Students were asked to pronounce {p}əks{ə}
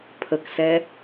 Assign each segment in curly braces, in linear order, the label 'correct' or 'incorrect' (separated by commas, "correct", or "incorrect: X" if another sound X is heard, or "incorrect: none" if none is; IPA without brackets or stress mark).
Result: incorrect: pʰ, incorrect: ɛ